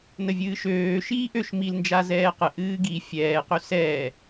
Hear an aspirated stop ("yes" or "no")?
no